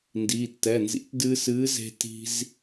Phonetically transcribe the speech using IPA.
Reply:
n d i˩˧˩ tː ɛ˩˧˩ n z ḭ˨˥ t d ɨː˧ s ɨː˨˥ z e̤˧ t i̤˧ z

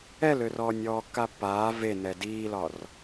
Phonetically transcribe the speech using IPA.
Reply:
ɛ l ø r ɔː nʲ ɔː kː a pː aː v e n ɛ d iː l ɒ r

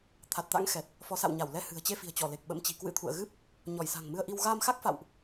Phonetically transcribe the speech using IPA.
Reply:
t̪ʰ a˨˩ t̚ t̪ a̰˧˥ ŋ x ɛ˨˩ t̚ | f ɔ˨˦ s a̰˧˨ w ɲ a˧˩ w l ɛ˧ h ɨ̤˨˩ ə̯ t͡ɕ e˧ f i̤˨˩ ə̯ t͡ɕ ɔ˧˩ l e˨˩ k̚ ɓ ə̰˧˥ m t͡ɕ i̤˨˩ k w ɨ̰˧˥ t̪ʰ ṵ˧˨ ə̯ ɣ ɨ˦˥ p̚ | ɲ ɔ˧˩ j s a̤˨˩ ŋ m ɨ˧ ə̯ ʔ i˧ w ɣ aː˧ m x a˦˥ k̚ f a̰˧˨ w ʔ

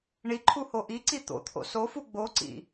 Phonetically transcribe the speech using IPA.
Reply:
ɳ i ǃʰ u h o ʔ i ǀ i t̪ o̰ t̪ʰ o̰ s o f u ɡ͡b o ǀ ḭ

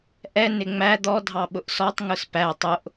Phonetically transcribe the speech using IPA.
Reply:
ʔ ɛ n ɪ ŋ͡m æ d̪ ɔ dʱ ɑ ɓ ʊ ʔ s ɔ tˤ ŋ ʊ s p æ tˤ ʊ ʔ

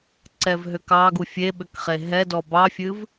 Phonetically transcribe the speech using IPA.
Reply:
ǀ ɛ v ɦ ʏ k ɑ ɡ u fʲ e ɓ ʏ k χ e ɦ ɛ d ɔ b ɑ fʲ ɨ v

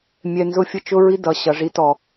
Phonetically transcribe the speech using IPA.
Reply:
mʲ ɛ˧ n z ʊ˦ fʲ ə˦ t͡ʃ ʊ˦ ɹ i˦ d ʌ˨ ɕ ʌ˨ ʐ i˧ t ɔ˨

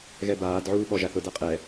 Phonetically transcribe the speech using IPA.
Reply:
ɣ ɛ b aː d ʕ uː ɓ ɔ ʒ a θ ʊ d a qʼ ɛ

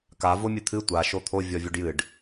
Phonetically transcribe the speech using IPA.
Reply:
k a v o mʲ ɨ t̪ʰ ɨ tʷ a ʃ o t̪ʰ o vʲ ɔ vʲ o ɖ j ɨ ɖ

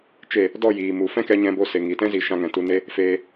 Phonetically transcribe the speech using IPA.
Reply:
t͡ʃ e˦˨ | d ɔ˦˨ j iː˨ m u˨ f ɛ̃˦ k ɛ˧ ɲ ɛ̃˧ b o˧ s e˨ ŋ i˨ t ɛ̃˦ z i˨˦ ʃ ã˧ ŋ ɛ̃˨ t u˧ n e˦ | f eː˧

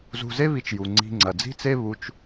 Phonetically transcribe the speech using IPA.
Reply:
z ṳ˧ z e˦ β i˧ t͡ʃ j u˨ ŋ͡ǀ i̤˧ ŋ͡ǀ ɐ˨ d͡z i̤˦ t͡s e˦ β u˧ t͡ʃ

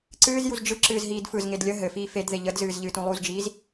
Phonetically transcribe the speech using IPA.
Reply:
ǀ ɨː z j u z d͡ʒ ɯ ǁ ɨː z ɦ iː d f ɯ z ŋ e d lʲ ə ɦ ɘ f iː f e d ð e ʎ ə d z ɨː z ʎ ɨː t ũ lˠ u z d͡ʒ iː z

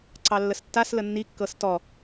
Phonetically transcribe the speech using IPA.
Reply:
ǀ ɑ lː ə s tː a s l ə nː i kː ɤ s t ɔ

